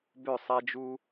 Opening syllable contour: falling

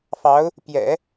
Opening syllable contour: rising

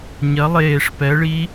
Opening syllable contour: rising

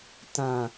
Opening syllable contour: low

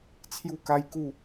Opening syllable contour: falling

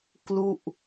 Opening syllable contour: falling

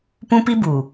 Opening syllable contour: high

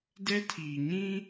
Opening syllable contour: high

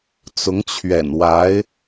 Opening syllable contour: rising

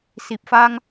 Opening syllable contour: low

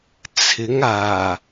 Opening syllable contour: rising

